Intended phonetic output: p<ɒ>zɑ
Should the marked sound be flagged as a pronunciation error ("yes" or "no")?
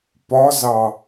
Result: no